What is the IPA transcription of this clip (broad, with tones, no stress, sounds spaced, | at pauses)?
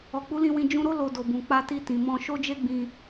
ɔ˨ k͡p u˨˦ l ĩ˧ w ĩ˧ d͡ʒ ũ˧ ɾ o˦ l o˧ d o˨ b ũ˨ k͡p a˧ t i˧ t ĩ˨ m ɔ̃˧ ʃ o˦ d͡ʒ e˦ ɡ͡b ĩ˧